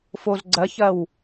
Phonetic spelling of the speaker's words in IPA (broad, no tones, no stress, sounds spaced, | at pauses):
f o z ɡ͡ǀ ɐ ç ɐ w